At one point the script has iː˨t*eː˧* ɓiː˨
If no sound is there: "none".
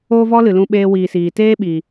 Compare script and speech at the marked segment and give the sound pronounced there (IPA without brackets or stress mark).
eː˦